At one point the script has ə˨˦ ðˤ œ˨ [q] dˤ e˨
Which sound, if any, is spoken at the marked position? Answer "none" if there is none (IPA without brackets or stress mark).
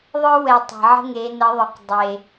q